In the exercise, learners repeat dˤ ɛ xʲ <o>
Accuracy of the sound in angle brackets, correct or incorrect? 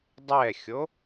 correct